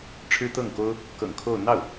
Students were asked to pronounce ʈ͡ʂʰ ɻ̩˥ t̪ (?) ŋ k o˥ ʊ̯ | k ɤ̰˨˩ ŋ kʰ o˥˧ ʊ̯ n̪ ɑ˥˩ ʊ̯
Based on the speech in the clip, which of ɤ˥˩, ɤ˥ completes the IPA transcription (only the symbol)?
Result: ɤ˥˩